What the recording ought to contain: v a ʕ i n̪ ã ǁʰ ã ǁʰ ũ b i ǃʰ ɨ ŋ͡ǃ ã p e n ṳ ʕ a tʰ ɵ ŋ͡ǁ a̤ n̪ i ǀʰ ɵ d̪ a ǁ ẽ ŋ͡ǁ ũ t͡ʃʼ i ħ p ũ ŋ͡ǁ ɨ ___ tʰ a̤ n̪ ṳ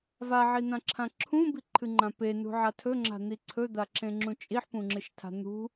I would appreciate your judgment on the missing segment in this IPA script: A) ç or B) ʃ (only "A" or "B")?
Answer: B